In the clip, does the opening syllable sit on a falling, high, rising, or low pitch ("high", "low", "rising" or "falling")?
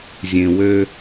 low